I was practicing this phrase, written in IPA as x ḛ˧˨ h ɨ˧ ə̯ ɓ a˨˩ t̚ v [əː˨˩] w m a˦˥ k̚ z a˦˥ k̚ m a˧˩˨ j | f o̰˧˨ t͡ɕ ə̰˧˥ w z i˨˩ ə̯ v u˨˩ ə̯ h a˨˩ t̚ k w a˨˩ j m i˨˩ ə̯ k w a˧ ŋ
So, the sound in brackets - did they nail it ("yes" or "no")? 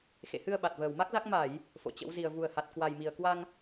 yes